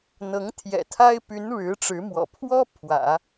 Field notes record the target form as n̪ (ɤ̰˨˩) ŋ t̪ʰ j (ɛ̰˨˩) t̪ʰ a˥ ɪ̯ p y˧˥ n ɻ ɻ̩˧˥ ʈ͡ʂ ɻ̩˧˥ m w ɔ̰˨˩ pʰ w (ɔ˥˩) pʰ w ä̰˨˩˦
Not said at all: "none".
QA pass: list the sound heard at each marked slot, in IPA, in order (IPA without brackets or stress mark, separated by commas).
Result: ɤ˧˥, ɛ̰˨˩, ɔ˥